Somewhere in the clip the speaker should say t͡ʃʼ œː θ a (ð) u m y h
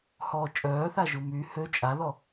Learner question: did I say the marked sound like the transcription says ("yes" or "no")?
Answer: no